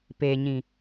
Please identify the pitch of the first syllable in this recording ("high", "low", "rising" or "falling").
low